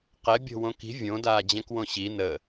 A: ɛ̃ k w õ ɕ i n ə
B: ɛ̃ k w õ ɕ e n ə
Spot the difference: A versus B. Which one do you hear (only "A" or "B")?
A